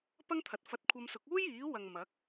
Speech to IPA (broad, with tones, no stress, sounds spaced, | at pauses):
p ɐ˥ ŋ t̪ʰ ɐ˨ t̚ f ɐ˧ t̚ kʷʰ ɐ˧ m s ʊ˨˥ k̚ uː˥ j iː˨˥ w ɐ˨ ŋ m ɐ˨˥ k̚